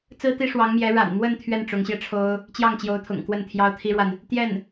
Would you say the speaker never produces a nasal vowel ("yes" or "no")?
yes